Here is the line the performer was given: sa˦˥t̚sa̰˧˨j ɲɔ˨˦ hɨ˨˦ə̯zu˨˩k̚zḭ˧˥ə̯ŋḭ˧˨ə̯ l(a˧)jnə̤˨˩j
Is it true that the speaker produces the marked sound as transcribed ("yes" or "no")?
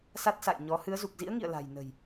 no